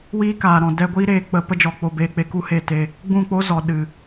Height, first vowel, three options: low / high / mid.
high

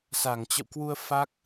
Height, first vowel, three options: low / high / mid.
low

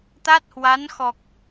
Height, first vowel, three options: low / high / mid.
low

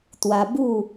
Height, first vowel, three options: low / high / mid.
low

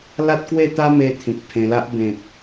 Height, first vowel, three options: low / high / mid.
low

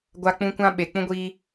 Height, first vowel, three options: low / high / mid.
low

